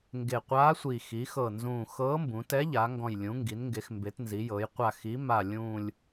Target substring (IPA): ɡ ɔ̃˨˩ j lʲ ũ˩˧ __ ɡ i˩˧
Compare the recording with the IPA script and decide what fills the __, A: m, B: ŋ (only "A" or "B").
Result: B